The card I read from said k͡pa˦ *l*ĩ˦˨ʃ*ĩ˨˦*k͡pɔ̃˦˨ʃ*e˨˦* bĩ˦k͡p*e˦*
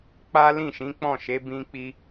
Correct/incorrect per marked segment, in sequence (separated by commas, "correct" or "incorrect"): correct, correct, correct, incorrect